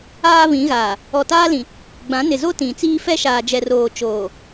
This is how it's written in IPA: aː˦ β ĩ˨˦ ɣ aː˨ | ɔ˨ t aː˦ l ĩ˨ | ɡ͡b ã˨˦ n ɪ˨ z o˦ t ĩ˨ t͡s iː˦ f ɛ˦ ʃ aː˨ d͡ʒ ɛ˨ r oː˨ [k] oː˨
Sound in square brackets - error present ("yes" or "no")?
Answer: yes